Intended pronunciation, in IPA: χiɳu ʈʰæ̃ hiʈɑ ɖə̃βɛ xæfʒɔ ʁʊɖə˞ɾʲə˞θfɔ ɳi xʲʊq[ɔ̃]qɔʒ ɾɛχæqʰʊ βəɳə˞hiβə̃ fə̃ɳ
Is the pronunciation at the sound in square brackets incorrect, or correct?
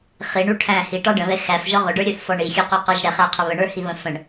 incorrect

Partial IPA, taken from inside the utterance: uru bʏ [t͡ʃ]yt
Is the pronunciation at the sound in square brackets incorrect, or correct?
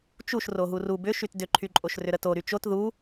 incorrect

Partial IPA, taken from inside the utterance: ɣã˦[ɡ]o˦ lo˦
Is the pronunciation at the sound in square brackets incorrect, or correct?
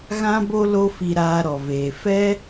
incorrect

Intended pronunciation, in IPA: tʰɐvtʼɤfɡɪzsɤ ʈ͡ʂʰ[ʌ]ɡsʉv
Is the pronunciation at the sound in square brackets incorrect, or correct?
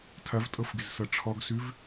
incorrect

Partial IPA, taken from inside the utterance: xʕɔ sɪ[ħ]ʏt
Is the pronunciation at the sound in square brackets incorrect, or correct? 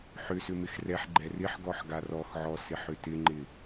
correct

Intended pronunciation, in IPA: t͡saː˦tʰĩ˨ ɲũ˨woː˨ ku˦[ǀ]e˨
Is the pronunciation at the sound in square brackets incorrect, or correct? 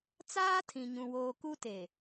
incorrect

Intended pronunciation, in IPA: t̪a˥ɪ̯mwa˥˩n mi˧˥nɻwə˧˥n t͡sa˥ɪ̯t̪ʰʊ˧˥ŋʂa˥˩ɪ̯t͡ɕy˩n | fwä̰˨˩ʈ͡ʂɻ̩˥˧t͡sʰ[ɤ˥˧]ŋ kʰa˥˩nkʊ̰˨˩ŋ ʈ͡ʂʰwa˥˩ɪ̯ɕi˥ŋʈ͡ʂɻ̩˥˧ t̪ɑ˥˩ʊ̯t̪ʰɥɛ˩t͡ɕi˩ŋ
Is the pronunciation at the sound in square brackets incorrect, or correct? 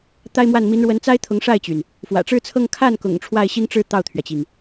correct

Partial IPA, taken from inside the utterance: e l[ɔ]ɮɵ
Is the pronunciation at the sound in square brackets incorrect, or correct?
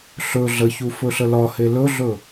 incorrect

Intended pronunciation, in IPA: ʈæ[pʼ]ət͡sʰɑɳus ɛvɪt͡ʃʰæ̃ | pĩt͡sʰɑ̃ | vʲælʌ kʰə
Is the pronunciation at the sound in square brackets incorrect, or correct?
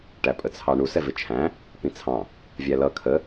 correct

